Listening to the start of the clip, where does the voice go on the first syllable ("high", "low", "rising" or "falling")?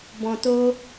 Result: low